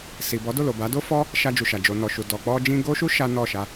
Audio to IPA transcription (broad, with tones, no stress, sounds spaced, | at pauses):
s i˨ b ɔ˨˦ d o˦˨ l o˨ b a˨˦ d o˦ f ɔ˦ | ʃ a˧ d͡ʒ u˨ ʃ a˨ d͡ʒ o˨ n ɔ˨ ʃ u˨ d ɔ˨ k͡p ɔ˧ d͡ʒ ĩ˧ ɡ o˦ ʃ u˦ ʃ a˦ n ɔ˦˨ ʃ a˧